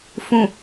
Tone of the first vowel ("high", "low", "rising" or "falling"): low